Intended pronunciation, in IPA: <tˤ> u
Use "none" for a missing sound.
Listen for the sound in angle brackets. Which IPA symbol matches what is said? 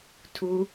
tʰ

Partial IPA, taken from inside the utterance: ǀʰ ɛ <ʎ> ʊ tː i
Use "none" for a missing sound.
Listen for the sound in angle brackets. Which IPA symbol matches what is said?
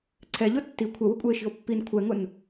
ʎ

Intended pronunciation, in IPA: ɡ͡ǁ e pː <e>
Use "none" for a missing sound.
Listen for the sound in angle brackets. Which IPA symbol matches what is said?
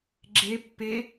e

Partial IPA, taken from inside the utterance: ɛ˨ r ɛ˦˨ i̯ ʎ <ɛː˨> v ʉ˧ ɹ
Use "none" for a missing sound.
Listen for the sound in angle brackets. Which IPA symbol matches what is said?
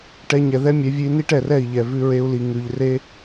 ɛ˨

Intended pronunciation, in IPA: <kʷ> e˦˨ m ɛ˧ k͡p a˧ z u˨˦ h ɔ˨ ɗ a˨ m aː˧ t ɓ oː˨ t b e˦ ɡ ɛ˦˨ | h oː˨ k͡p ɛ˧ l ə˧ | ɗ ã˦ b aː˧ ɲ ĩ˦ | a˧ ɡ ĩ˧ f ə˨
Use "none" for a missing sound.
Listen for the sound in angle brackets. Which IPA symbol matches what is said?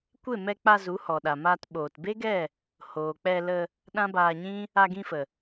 kʷ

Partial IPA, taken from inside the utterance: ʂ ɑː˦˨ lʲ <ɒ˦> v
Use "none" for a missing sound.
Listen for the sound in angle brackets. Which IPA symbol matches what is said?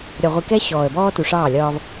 ɒː˦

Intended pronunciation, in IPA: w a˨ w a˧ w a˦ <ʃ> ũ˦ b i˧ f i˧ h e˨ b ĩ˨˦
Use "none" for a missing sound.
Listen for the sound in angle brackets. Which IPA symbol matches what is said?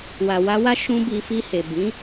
ʃ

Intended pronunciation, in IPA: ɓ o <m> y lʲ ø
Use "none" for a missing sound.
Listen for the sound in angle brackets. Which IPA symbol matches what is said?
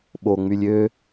ŋ͡m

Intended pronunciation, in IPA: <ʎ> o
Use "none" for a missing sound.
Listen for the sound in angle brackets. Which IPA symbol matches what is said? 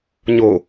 ɲ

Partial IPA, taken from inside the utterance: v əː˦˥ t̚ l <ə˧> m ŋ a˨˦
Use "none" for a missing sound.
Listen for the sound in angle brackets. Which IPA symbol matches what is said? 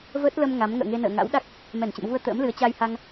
ə˧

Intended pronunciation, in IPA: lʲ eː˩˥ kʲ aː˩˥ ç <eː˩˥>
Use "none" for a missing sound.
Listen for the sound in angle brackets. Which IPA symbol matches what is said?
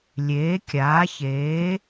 eː˩˥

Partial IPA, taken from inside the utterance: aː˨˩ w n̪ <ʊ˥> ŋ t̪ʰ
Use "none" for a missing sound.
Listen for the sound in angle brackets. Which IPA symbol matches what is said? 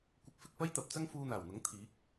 ʊ˨˥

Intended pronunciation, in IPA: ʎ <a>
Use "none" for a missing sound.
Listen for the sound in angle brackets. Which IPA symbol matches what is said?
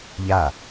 a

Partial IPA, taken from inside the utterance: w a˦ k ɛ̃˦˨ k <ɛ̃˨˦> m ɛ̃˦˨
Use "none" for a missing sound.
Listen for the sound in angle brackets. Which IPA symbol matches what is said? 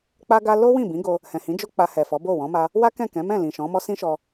ɛ̃˨˦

